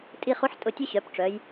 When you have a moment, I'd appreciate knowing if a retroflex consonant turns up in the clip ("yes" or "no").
yes